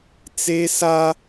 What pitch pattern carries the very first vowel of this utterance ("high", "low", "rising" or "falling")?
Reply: high